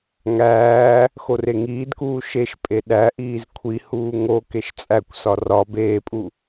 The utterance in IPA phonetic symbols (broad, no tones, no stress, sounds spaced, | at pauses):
ŋ æː | x o r e ŋ iː d k uː ʃ e ʃ pʼ e ɗ æ ʔ iː z kʷʰ i h uː ŋ o k e ʃ t͡sʼ æ kʷ s ɒ r ɒ b eː pʼ u